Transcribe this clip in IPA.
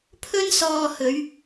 pʰɵ˥nsɔː˧hɵ˨˧ɥ

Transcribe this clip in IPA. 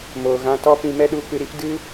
moː˨ɣã˧ tɔ˦pĩ˧ mɛ˦ɗu˧kɨ˧ɾi˦p dɨ˦

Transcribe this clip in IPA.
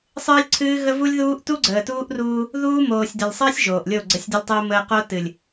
sˤɨː˦lʲǀʰɨː˦ɣə˦vu˦lʲ ðuː˦ʔ tu˦ɡ͡ǀəː˨tuː˦ʔruː˦ | ðuː˦moː˨sʲdə˨lʲsˤəː˦sʲ ʒoː˨ʔlʲo˦˨ ɡ͡ǀə˨sʲdɨ˨lʲtˤɨː˨məː˨ qo˦ tɨ˨lʲ

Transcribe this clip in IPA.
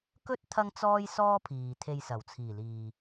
kɵ˥t̚ t̪ʰɐ˥ŋt͡sɔː˥j sɔː˥pʰiː˨t̪ʰe˧j sɐ˨˩wt͡sʰiː˨˩liː˨

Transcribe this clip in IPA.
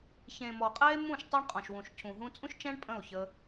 çẽ˨mɔ˨qʼɛ˦e̯mũ˦˨ʃ tˤe˦ɳqʼɔ̃˨ʃwũ˨ʃ cʰũ˨ ɦũ˧t͡sʼũ˦ʃt͡ʃɛ̃˦ɳ pʼə̃˦˨o̯çə˧

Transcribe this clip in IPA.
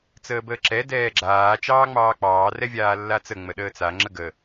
t͡səːbəːǁɛ dɛːɡ͡ǁaː t͡ʃɑːŋ͡mɑːk͡pɑː rɛvʲaːlːat͡sə ŋ͡məɗəːt͡sa ŋ͡ǁəɡə

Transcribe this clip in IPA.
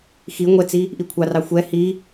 xi ŋʷɛt͡si | ʔikʷʰɑrɑ xʷɛ hi

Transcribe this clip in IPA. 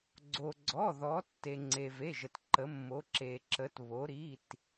ɡ͡ǀo˩ɡ͡ǀɔ˩˧˩ðɔ˩˧ tːe˩ŋ͡ǀe˩ ve˩˧˩ʒə˩tǃə˩˧mːo˩˧ ǁe˩ǁə˩˧tβo˩˧ ɾi˩˧˩t

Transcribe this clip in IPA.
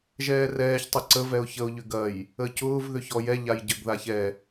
ʒɛːrɛːç tˤʊǀə vɛʊ̯çəʊ̯ ʎʏɡɐj | əcʊːv ðʏçɔjɛ ʎajɟəɡ ðaçɛ

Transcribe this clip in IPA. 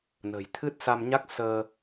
nə̤˨˩jt̪ʰɨ˦˥t̚ sa˧mɲa˦˥k̚ səː˧

